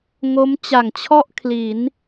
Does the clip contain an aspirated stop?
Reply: yes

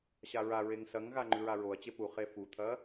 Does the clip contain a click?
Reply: yes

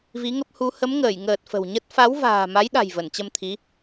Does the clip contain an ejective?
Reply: no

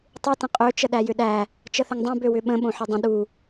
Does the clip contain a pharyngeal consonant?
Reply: yes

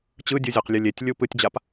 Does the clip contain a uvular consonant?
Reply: yes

